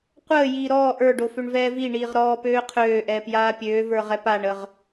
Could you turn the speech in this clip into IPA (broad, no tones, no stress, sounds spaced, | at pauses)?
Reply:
qʷ əː j iː ɾ ɔː ʔ ə˞ ɖ o f ø ɳ v ɛː v i ɳ iː ʁ ɾ ɔː p øː qʰ øː ʔ ɛː p j aː pʲ øː v ə˞ ʁ ɛ p a ɳ ə ʁ